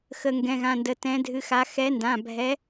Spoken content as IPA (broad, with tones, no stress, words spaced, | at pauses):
xə˧˩ŋɡɛ̃˩˧˩ɣã˩˧˩ndə˩˧˩ tɛ̃˨˦dʱɨ˨˦xa˨˦ xɛ˨˦ndã˩˧˩bʱɛ˨˦